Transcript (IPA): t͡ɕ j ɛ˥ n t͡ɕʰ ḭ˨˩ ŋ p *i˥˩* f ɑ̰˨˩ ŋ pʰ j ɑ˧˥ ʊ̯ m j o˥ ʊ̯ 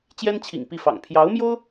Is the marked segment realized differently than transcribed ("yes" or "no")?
no